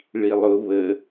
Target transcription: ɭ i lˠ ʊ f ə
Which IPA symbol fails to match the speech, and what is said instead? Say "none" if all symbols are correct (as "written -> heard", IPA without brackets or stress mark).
f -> β